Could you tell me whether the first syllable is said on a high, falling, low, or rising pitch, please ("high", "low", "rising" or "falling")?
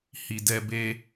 low